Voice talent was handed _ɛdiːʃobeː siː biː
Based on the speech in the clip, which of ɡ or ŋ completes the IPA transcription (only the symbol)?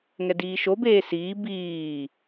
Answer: ŋ